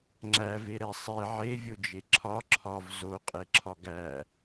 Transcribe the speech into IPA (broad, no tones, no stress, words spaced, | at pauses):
ŋ͡ǁæveɾɛ sˤe ʕevʲod͡ʒe ǁʰɒ ǁʰɒv zoqʼeǁʰɒ ɡæ